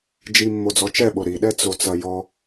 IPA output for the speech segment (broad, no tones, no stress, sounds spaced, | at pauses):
d͡ʒ i mː o d͡z ɔ t͡ʃ ɛ ɓ o ɾ i ɗ ɛ t͡s o t͡s ɐ j ɔ